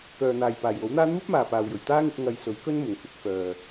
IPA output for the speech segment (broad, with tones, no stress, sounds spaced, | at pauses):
k œː˨ n̪ aː˨ j p aː˨˩ j w o˨˥ w n̪ aː˥ n̪ uː˥ p̚ m aː˨ p aː˨ w j ɵ˨˩ ɥ t̪ aː˥ ŋ ɪ˨˥ k̚ ŋ ɐ˧ j s ɵ˨˥ ɥ k ɵ˥ n m ʊ˨˩ ŋ f ɪ˨˥ k̚ f œː˨